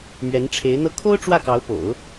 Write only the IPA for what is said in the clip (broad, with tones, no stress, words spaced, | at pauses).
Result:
mɥɛ˧˥nʈ͡ʂʰe˧˥ɪ̯ n̪ɤ˧˥ kʰo˥ʊ̯ ʈ͡ʂwä˥˩kɑ˧˥ʊ̯po̰˨˩˦ʊ̯